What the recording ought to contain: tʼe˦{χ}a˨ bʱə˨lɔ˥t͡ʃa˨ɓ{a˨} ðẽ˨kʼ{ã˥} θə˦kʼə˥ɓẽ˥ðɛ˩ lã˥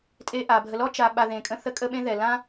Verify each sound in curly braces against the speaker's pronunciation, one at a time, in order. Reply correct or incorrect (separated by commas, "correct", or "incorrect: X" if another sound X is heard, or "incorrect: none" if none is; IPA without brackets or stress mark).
incorrect: ʔ, correct, incorrect: ə̃˥